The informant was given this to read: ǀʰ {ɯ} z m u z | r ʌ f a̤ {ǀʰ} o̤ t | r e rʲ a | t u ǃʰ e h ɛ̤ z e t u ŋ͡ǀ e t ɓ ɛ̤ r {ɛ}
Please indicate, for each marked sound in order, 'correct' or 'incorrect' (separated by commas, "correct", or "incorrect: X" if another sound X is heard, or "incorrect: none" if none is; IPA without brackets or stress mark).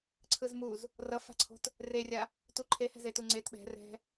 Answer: correct, correct, incorrect: ɛ̤